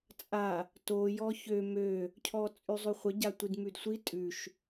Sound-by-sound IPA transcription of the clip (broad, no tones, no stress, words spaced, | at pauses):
t͡sʼa | to jɔçø mø | cʰɔt͡sʼʉzˤʉχʷə ɟatʷidmʉdsʷi tʼʉʃ